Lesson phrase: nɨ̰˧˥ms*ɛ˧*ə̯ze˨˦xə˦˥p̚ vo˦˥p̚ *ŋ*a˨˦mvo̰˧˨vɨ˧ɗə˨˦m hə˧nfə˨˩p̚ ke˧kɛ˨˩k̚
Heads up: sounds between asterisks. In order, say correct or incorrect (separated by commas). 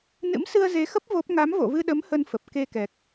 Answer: incorrect, correct